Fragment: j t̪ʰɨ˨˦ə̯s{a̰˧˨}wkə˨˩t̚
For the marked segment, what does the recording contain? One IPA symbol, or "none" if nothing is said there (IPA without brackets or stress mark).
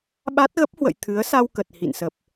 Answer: a˧